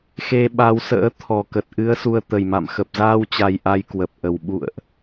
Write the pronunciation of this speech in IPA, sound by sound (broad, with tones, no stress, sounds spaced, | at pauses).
x e˧ ɓ a˨˦ w s ə̰ː˧˥ t̪ʰ ɔ˨˩ k ə˨˩ t̚ ʔ ɨ˨˦ ə̯ s u˧ ə̯ t̪ ə˨˩ j m a̰˧˨ m x ə˨˩ p̚ z aː˧ w t͡ɕ a˨˩ j ʔ a˧ j k w ə˨˩ p̚ ʔ ə˨˩ w ɓ ṵ˧˨ ə̯ ʔ